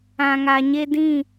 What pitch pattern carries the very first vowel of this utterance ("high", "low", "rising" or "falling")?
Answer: low